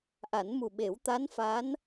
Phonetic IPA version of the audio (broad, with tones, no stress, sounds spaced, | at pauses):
ʔ a˨˩˦ n m u˨˩ ɓ e˨˩˦ w t̪ a˧˥ n f a˧˥ n